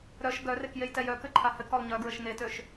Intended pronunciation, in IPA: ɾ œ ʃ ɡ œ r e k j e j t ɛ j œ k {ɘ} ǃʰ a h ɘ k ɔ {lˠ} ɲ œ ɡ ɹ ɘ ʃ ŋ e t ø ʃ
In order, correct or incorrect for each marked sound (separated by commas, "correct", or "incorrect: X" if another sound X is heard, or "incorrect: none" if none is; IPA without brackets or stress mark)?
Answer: correct, correct